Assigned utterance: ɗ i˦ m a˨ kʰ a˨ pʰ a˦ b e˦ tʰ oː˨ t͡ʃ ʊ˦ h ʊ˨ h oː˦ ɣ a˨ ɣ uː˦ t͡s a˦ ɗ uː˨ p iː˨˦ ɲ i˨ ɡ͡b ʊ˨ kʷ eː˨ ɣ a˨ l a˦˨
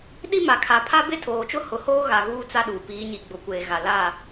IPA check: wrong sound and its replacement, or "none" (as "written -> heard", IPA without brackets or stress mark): none